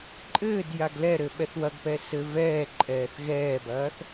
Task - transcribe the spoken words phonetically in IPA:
ǃʼ ɘː d j a ɡ l ɛ ɾ ɘ ɓ ɛ θ w ɐ ɡ p ɛ s ɘ v ɛː ǃʼ ɛː θ ɣ ɛː b ɐː θ

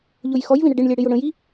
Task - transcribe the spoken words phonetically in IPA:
ʎ ʊ j x ɔ j v ĩ ɽ ə ɖ ɪ ɳ lʲ ɛ ɽ ɪ j ʊ ɽ ə̃ j i

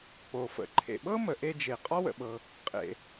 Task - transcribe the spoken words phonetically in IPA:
k͡p o˩ f ə̰˩ ǃʰ ḛ˩ ɓ ɤ˥ m ə˩ ʔ e˧ d͡ʒ e˩ qʼ ɒ˥ w ə̰˩ ɓ ɤ˩ | qʼ ḛ˩

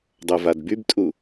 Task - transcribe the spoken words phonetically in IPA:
dˤ œ v a d b y b tʼ u

